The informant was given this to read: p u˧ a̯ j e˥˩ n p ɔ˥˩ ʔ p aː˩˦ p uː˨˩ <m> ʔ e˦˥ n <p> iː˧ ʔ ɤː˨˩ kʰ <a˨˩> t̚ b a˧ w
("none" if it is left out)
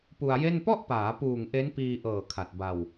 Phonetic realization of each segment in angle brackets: ŋ, p, a˨˩

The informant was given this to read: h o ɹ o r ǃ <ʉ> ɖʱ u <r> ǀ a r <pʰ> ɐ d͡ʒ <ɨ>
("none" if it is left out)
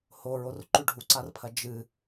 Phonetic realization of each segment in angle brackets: ʉ, none, pʰ, ɨ

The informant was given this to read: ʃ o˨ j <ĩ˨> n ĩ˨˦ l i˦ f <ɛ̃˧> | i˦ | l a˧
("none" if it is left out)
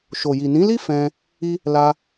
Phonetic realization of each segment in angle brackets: i˨, ɛ̃˧

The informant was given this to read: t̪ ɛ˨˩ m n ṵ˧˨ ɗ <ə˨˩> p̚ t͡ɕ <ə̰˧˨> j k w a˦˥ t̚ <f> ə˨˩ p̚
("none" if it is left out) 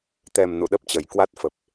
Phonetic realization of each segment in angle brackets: ə˦˥, ə˨˩, f

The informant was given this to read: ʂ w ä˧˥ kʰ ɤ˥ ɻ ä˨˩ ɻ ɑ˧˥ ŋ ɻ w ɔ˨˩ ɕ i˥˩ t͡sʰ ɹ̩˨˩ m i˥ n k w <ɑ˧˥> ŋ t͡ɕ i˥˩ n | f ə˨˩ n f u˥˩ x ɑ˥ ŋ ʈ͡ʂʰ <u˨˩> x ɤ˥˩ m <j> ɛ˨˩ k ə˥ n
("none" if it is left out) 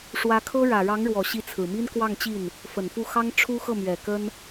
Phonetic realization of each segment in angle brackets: ɑ˥˧, u˥, ɥ

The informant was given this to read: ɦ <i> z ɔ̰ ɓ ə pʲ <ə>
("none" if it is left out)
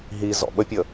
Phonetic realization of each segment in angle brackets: i, ə

